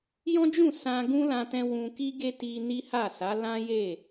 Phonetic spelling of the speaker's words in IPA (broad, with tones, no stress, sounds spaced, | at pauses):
j ɔ̃˦ d͡ʒ ũ˦˨ s ã˧ ɡ ũ˦ l ã˧ t ɛ̃˧ w ũ˧ k i˦ ɡ e˦ t i˧ n i˦ h a˦˨ s a˨˦ l ã˦ j e˦˨